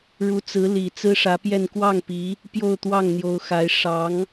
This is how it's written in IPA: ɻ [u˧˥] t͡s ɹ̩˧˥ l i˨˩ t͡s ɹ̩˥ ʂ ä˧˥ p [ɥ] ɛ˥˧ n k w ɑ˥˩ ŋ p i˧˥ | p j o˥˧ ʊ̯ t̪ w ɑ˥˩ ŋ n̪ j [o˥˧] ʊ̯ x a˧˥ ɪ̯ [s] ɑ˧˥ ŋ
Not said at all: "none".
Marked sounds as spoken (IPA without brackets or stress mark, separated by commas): u˧˥, j, o˧˥, ʂ